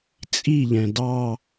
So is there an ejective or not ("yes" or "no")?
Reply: yes